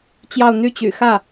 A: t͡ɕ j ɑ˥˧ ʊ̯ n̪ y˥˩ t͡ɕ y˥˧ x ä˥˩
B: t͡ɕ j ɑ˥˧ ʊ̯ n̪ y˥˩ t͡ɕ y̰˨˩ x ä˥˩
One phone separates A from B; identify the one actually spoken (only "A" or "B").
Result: B